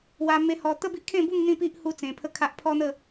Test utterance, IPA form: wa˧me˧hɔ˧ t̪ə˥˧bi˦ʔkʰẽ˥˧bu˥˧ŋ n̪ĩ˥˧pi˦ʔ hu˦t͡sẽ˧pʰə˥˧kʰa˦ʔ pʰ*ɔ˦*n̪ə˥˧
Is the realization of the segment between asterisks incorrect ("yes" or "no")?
no